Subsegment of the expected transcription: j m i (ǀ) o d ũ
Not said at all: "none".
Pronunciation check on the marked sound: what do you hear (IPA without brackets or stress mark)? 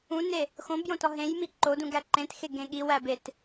ǃ